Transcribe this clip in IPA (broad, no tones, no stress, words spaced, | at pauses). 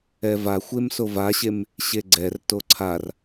ɛvaxʷem sovaɕem | ɕeɡ͡ǀɛrto ǀʰar